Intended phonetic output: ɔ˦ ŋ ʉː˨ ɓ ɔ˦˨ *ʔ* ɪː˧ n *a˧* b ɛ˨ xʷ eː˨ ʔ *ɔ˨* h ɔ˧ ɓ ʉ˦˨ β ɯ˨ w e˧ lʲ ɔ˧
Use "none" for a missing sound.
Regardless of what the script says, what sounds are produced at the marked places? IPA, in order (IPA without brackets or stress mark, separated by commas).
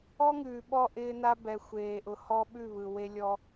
ʔ, a˧, ʊ˨